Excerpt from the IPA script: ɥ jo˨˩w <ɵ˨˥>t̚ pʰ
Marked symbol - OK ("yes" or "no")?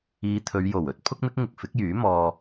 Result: yes